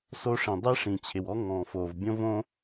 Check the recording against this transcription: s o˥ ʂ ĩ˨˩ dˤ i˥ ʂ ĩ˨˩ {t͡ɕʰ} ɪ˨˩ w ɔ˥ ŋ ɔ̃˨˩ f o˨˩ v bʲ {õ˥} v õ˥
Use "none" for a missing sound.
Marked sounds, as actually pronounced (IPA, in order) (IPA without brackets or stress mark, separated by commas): t͡ɕʰ, õ˥